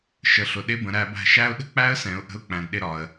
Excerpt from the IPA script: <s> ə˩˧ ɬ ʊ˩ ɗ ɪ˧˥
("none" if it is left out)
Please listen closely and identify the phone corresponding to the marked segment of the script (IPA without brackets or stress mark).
ʃ